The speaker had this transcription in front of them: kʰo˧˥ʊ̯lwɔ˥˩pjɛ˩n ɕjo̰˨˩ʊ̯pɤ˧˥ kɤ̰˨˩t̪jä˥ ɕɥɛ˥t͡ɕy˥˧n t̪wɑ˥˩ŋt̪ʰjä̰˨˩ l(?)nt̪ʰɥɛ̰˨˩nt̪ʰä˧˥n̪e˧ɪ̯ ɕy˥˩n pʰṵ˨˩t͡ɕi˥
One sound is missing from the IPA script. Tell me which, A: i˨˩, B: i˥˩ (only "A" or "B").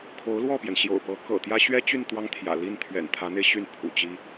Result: B